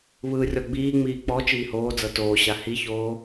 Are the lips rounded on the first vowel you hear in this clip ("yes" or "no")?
no